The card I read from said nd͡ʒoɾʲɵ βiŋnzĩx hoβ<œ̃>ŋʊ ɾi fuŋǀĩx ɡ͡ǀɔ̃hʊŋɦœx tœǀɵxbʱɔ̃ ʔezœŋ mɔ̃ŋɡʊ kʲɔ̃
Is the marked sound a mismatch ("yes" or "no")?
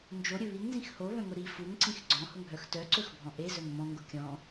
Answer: no